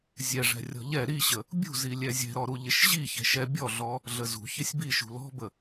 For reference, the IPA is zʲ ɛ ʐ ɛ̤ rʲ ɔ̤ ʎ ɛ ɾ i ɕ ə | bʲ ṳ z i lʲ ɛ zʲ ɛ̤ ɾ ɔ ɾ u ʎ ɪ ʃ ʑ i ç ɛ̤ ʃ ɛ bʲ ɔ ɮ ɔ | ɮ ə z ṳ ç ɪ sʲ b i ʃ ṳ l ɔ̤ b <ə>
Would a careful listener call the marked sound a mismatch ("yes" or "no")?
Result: no